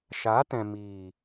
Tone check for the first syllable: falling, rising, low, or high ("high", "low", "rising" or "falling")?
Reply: rising